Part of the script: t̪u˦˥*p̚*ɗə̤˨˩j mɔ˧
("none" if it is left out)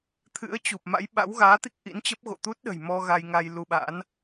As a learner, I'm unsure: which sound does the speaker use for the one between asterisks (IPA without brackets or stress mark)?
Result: t̚